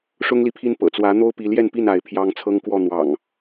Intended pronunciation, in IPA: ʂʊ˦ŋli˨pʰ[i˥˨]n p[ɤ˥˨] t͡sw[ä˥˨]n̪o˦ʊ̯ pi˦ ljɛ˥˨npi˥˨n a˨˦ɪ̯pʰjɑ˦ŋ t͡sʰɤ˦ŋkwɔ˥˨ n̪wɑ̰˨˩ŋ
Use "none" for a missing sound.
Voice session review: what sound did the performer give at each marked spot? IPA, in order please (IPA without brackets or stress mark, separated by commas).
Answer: i˦, ɤ̰˨˩, ä˨˦